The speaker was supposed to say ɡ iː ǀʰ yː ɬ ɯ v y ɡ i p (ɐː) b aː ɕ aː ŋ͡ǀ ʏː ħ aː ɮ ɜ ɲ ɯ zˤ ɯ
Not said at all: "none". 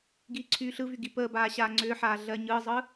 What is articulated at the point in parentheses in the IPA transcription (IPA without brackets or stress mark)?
əː